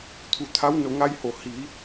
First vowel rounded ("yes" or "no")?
yes